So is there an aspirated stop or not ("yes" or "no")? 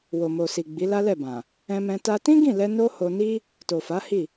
no